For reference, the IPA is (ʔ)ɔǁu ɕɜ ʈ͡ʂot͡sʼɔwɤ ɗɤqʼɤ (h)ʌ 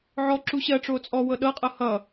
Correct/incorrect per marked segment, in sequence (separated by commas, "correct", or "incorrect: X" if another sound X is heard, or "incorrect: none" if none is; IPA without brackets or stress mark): incorrect: ʕ, correct